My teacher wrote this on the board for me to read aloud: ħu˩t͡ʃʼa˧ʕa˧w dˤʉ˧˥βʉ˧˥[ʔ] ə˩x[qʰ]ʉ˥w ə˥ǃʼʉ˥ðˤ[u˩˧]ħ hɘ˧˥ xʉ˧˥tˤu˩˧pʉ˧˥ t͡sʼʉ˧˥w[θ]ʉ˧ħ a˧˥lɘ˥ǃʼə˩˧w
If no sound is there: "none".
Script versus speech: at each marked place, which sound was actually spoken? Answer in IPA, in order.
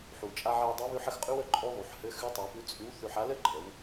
ħ, qʼ, u˩˧, θ

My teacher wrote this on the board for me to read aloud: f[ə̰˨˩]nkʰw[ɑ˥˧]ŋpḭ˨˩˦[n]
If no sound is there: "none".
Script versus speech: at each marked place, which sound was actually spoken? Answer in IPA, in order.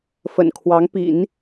ə̰˨˩, ɑ˧˥, n

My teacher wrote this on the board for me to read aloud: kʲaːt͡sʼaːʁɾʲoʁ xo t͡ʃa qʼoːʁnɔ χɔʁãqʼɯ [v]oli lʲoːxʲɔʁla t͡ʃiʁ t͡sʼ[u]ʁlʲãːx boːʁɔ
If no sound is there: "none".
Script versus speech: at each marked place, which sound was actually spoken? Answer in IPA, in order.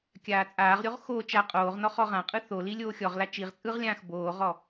θ, ɯ

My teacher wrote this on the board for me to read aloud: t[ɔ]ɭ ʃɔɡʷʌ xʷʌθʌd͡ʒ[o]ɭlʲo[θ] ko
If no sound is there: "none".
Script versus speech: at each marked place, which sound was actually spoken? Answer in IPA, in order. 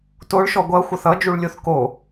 o, u, θ

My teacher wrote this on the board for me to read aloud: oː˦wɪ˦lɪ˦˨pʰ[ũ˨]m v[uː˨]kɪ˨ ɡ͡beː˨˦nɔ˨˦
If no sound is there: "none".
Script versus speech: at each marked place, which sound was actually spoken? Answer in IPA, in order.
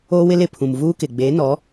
ũ˨, uː˦

